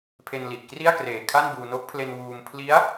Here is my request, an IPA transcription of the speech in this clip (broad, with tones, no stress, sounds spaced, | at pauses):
pʰ e˧ n l i˨˩ ʔ k r i˥˩ a̯ k r eː˨˩ kʰ a˥˩ n b uː˧ n o˦˥ k̚ pʰ l e˧ n w uː˧ m pʰ l i˦˥ a̯